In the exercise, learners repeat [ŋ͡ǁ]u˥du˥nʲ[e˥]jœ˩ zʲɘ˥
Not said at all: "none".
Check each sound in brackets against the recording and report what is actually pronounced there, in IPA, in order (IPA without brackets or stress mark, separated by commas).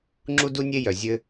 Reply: ŋ͡ǁ, e˥